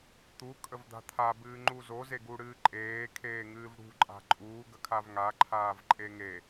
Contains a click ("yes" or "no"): yes